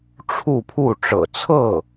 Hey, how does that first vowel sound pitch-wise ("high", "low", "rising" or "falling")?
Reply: falling